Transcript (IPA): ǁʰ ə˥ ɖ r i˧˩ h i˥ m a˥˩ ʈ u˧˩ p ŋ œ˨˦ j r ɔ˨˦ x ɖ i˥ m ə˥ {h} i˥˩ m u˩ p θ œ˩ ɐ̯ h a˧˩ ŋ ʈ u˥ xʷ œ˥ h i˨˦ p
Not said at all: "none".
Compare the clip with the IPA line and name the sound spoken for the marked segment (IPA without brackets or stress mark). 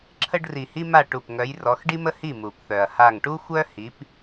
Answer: h